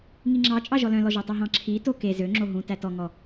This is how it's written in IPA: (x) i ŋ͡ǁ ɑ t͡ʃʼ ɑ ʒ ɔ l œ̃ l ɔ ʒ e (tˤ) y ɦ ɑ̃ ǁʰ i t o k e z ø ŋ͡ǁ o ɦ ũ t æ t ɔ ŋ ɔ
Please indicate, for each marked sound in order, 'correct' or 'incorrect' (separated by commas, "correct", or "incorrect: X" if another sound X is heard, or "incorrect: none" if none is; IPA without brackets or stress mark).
incorrect: ŋ, correct